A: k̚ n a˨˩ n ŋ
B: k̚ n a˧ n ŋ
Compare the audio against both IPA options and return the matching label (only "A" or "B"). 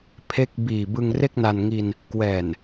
B